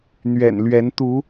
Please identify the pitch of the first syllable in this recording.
low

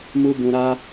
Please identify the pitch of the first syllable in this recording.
high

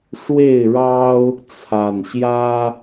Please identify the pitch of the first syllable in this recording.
falling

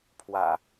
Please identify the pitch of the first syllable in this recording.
low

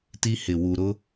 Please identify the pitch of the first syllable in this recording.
high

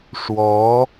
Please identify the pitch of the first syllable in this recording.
rising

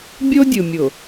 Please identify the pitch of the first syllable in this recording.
high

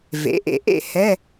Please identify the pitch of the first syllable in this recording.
rising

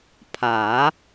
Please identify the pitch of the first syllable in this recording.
rising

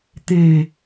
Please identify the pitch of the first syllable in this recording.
low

